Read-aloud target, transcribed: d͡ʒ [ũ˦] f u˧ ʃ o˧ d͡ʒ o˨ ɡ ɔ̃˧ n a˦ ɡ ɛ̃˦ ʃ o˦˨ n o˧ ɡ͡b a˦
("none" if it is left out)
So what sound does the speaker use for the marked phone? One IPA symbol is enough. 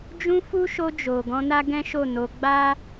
ũ˧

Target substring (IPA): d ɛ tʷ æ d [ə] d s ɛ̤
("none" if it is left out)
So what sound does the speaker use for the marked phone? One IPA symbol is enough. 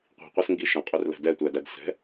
æ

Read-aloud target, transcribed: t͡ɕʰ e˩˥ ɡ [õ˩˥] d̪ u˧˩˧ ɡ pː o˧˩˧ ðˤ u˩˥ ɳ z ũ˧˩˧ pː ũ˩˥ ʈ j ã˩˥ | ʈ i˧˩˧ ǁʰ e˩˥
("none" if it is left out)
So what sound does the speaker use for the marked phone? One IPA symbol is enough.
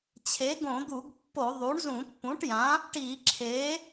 õ˧˩˧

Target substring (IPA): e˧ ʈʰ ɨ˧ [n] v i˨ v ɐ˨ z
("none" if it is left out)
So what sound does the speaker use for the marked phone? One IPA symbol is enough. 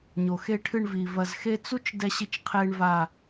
ɳ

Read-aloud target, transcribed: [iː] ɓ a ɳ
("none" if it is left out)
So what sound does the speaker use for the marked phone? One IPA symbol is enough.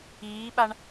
iː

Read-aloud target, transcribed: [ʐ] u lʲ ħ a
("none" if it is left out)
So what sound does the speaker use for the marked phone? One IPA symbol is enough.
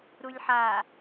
ɾ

